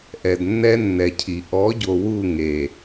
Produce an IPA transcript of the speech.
ʔɛ˨dnːɛ˦nːɛ˨cʰi˨ ʔɔ˨˦ɟo˨ wu˦˨ŋe˨

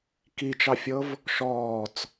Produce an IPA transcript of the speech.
kit͡ʃɑfʲɤv | ʃɔːt͡s

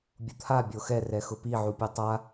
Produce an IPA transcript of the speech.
bʲut̪ʰa bʲoxɛ rɛxʊpi ʕupʲotˤa

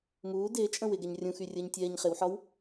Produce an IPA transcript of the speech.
muː dɪː t͡ʃʼə̃wɪɡɛɲ rʲũxy rʲəːɲtʲɛːɲχɪwħɒw

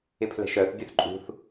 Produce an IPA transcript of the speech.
ɪpʰlɛ̤ʃœθ bʲøθǃʼṳθ

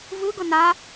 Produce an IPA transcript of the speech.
vɯɡʊ na

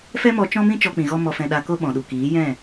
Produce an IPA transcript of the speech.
fɛ˦mɔ˧ t͡ʃɔ̃˦mĩ˦ t͡ʃɔ˧k͡pĩ˨ɣɔ˧ mɔ˨fɛ̃˨ ɗa˧ ko˦ɓɔ̃˨ɗu˨ kiː˨˦jɛ̃˦˨

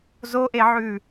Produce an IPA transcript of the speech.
zoʔeʕʉː

